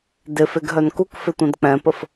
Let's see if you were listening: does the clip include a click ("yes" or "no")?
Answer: no